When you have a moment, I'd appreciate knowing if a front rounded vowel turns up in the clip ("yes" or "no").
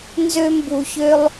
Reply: yes